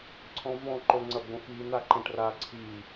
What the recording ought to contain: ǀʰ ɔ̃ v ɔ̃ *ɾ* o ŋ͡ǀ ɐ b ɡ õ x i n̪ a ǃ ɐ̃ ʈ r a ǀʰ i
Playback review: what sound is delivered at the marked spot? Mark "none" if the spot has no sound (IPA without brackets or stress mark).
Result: ǃ